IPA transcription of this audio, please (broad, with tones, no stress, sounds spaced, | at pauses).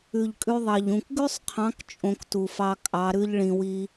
ʉ˨ ʎ kʼ ʉ˧ ðˤ ɑ˨ ʎ ũ˨ k ɡ ʉ˦ sˤ qʰ ɑ̃˨˦ k t͡ʃʼ õ˧ k t u˨ f ɑ˧ kʼ ɑ˨˦ ɾ ʉ˦ ʎ ɭ ĩ˧ w i˦